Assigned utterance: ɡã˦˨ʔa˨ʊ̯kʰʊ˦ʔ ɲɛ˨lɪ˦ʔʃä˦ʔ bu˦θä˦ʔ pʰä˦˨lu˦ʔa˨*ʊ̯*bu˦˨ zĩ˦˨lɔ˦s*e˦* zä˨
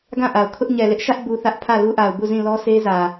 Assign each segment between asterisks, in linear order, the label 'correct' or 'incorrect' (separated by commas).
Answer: correct, correct